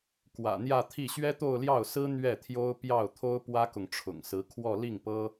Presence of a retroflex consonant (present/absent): present